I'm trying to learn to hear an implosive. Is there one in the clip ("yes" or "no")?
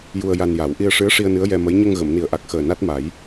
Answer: no